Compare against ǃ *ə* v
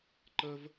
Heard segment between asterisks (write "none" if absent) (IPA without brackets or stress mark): ə